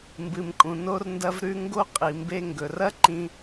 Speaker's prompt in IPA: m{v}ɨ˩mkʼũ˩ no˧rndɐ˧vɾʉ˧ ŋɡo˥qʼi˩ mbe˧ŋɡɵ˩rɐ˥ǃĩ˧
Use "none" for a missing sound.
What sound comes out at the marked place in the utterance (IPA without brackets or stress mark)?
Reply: b